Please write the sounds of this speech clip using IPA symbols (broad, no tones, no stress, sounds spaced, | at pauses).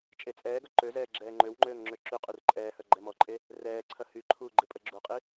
t͡ʃʼ e t͡sʼ ɛː ɡ œ ǃ ø z ɛː ɡ͡ǁ ɛː ŋ͡ǃ ø w ŋ͡ǃ øː ŋ ŋ͡ǁ ø ǁ y qʼ y r ǃʼ ɛː h œ ɡ͡ǃ ɛ m ɔ ǃʼ e | r ɛː ǀʰ ɐ h y ǃʰ uː ɡ͡ǃ ɪ pʼ ə ɡ͡ǁ u qʼ i